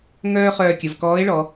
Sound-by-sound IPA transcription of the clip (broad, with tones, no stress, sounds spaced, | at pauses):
ŋ œː˥ χ œː˧ kʲ ə˩˧ v k ɔː˧˥ ɪ̯ ɭ ɔ˩˧